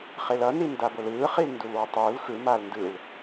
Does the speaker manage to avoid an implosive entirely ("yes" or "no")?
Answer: yes